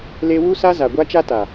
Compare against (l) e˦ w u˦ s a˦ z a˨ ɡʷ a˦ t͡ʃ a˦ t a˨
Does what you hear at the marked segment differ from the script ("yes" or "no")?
no